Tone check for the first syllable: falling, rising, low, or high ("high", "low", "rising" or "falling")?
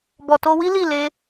low